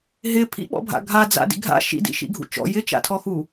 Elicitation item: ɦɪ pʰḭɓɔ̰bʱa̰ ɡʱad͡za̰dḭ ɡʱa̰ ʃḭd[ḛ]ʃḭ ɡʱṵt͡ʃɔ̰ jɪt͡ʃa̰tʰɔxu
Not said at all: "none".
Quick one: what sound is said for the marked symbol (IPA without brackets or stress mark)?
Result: ḭ